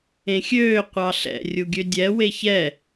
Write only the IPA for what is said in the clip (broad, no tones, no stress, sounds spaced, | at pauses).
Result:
ẽ xʲ øː qʷ ɑ ɬ ɛ̰ rʲ u ɡʲ ø dʲ ɛ w e ç ɛ